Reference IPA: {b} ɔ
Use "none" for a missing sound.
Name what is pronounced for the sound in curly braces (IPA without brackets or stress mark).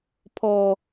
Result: pʰ